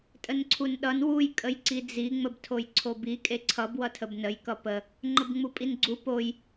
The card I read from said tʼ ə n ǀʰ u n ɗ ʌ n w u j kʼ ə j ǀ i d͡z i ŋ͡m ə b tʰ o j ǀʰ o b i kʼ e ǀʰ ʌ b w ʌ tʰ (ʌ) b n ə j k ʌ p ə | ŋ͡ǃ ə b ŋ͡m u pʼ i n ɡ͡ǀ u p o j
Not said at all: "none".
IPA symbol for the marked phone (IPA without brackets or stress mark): ə